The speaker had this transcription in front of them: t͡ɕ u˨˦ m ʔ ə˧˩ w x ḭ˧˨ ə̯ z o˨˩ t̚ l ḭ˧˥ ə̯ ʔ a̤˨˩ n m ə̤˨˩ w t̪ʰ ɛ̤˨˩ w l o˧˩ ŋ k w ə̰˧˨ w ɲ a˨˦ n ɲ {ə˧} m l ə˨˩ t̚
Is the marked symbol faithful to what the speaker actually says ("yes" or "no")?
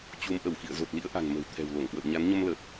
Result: yes